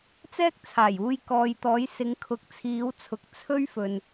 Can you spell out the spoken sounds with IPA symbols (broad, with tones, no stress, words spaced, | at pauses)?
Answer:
t͡sɛː˥k̚t͡sʰaː˨˩juː˧j kɔː˨jt̪ɔː˨˧jsɪ˨˧ŋ kʰʊ˨k̚t͡sʰiː˨˧wt͡sʰʊ˨k̚ t͡sʰɵ˥ɥfɵ˨n